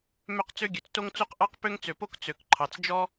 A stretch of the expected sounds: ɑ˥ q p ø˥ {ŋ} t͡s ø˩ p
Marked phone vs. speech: correct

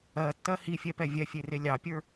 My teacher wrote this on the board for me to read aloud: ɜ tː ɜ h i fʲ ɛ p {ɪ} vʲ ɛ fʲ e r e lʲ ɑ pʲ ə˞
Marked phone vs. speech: incorrect: ɛ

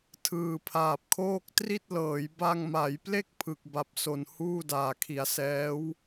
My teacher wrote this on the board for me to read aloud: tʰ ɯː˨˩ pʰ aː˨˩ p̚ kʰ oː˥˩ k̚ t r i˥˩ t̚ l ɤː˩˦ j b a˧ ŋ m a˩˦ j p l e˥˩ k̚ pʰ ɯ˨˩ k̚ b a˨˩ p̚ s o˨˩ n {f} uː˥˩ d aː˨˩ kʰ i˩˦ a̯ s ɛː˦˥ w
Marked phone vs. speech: incorrect: h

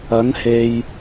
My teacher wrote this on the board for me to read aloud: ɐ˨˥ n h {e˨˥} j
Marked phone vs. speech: incorrect: e˨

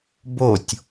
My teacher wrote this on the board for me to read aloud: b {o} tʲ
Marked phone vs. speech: correct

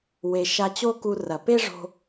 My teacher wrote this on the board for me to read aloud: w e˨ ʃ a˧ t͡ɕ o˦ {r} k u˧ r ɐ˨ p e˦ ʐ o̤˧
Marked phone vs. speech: incorrect: none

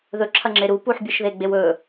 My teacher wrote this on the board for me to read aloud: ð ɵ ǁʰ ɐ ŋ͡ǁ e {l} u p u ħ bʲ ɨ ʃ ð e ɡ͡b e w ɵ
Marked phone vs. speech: incorrect: ɾ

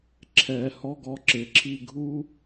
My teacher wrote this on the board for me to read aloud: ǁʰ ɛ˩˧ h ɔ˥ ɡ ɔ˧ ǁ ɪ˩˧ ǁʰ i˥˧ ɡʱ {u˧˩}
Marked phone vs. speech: incorrect: u˥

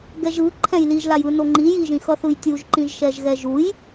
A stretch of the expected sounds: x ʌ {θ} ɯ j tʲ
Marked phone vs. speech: correct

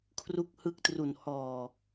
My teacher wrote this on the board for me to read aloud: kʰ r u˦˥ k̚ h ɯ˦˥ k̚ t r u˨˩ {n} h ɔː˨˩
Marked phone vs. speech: correct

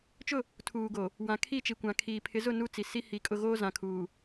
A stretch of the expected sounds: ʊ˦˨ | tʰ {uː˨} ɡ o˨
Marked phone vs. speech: correct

